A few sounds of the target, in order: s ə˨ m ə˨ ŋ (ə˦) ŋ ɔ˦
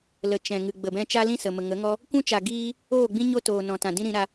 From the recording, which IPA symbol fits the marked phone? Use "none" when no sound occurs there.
ə˨˦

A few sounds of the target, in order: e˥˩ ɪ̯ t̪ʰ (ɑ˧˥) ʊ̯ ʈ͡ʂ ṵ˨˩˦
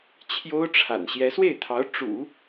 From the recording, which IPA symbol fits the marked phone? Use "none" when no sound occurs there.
ɑ˧˥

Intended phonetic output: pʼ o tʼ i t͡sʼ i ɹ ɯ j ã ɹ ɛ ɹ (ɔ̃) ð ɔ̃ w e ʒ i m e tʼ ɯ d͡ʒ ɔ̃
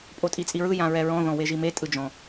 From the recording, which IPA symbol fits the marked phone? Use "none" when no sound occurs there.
ɔ̃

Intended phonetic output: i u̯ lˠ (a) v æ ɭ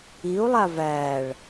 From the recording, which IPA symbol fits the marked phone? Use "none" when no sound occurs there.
a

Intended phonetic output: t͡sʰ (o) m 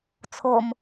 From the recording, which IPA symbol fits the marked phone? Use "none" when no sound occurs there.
o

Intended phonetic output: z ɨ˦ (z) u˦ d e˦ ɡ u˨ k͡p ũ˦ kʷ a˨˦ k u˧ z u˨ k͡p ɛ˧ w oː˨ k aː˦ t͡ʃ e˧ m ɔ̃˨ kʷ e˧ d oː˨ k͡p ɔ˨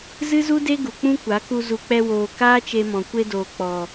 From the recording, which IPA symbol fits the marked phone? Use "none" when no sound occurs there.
z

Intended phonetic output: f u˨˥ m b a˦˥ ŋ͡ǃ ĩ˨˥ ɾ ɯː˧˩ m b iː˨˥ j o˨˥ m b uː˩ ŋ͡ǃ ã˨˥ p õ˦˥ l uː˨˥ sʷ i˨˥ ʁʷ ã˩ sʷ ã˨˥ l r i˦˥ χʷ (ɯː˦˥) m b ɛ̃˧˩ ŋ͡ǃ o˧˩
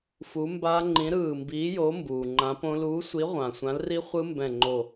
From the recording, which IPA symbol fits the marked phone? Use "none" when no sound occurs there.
ɯ˦˥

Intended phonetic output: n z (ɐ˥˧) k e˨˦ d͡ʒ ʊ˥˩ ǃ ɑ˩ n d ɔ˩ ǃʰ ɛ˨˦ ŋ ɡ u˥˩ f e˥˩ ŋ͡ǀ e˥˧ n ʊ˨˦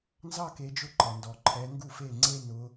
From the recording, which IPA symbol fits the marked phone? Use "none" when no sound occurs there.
ɑ˥˧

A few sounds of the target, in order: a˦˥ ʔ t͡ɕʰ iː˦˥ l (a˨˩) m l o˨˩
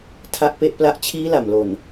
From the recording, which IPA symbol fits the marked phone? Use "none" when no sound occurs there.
a˨˩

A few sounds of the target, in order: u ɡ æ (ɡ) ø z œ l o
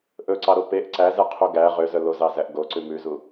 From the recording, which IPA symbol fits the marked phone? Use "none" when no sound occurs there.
ʁ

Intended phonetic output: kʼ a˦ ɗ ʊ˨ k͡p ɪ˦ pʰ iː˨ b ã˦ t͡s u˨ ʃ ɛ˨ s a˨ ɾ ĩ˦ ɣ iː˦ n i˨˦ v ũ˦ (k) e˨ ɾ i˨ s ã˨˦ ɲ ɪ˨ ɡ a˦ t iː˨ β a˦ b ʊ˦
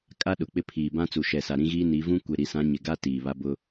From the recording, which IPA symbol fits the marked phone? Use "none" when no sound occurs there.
kʷ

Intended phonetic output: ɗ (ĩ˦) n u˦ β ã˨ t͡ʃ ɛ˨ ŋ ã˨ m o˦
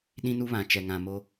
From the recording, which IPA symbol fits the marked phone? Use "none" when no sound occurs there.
ĩ˦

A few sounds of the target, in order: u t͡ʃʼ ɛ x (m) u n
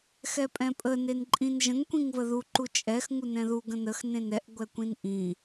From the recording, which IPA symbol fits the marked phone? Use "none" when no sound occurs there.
ŋ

